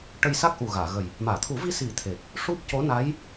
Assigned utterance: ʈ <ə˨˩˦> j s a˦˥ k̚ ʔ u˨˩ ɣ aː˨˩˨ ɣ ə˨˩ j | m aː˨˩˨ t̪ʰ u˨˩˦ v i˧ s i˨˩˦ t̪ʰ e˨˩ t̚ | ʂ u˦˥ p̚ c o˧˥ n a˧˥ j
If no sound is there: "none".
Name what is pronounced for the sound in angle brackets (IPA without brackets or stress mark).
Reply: ə˧